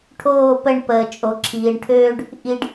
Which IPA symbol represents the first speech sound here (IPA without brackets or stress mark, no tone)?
ʈʰ